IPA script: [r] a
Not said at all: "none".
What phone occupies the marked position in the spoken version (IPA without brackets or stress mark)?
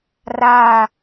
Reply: r